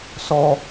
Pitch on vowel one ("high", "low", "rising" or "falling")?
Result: low